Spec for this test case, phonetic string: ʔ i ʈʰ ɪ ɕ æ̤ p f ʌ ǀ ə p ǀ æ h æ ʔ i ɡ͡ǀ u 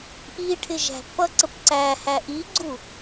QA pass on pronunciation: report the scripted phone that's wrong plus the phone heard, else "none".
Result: ɕ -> ʒ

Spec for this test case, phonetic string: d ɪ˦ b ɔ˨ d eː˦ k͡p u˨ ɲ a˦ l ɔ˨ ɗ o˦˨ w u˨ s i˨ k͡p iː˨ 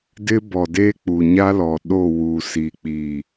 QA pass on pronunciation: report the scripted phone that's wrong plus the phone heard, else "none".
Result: none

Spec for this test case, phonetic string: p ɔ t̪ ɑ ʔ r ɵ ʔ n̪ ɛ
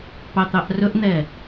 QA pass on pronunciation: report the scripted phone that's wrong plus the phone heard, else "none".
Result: ɔ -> ɑ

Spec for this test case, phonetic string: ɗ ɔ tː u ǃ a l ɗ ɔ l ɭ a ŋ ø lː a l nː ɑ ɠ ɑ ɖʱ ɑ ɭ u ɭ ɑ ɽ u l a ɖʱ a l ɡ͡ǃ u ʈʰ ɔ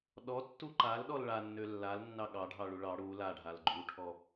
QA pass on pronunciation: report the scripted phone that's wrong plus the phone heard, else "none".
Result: ŋ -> nː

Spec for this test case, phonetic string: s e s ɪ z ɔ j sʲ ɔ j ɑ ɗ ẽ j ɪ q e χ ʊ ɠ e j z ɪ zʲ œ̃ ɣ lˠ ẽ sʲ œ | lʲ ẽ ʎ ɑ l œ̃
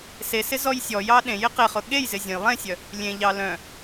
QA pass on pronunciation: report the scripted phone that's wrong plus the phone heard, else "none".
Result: ɣ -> j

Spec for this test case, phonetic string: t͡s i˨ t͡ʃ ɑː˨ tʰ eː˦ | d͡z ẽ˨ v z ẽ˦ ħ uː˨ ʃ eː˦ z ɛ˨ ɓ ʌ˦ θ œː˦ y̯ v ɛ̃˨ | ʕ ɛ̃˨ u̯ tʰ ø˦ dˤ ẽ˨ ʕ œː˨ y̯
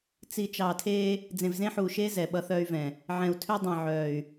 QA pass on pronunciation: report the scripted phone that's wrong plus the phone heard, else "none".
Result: none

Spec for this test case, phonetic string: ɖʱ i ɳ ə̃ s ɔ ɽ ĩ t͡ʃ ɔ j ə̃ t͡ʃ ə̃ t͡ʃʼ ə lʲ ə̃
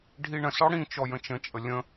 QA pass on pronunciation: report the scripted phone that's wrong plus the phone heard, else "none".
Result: none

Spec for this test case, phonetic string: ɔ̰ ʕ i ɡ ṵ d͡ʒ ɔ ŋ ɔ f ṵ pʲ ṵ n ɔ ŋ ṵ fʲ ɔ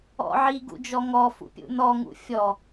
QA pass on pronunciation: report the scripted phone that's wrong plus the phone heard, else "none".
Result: none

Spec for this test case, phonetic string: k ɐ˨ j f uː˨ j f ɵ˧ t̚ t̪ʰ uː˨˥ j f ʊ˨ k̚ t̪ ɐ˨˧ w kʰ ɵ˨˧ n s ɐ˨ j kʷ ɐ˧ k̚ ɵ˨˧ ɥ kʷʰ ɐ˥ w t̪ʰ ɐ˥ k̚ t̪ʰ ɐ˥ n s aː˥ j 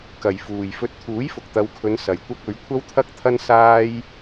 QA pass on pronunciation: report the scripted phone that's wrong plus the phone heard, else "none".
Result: none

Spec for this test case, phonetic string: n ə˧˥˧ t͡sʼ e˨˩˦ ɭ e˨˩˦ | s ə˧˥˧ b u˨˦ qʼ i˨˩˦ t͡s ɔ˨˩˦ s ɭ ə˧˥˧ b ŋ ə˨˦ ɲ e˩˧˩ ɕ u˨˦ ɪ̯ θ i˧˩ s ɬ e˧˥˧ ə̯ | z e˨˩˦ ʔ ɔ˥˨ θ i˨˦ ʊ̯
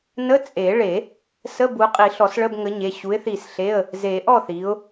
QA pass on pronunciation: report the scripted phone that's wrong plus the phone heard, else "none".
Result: t͡s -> ɬ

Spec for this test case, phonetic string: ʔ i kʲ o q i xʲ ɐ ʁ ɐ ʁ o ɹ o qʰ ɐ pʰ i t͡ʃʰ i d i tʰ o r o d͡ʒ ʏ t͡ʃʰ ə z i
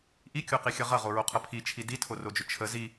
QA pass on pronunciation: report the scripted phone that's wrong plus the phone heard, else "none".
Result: none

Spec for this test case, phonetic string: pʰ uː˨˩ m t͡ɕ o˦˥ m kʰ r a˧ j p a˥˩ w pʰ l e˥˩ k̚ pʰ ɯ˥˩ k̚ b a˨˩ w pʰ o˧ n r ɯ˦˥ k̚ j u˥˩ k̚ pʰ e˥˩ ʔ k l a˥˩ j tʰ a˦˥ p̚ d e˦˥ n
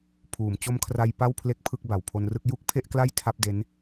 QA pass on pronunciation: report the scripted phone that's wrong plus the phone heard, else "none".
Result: none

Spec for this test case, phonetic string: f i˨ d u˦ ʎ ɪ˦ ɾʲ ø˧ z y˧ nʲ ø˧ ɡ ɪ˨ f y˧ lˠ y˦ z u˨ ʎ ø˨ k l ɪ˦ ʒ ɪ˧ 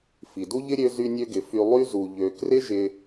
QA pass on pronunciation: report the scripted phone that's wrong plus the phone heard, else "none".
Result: l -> r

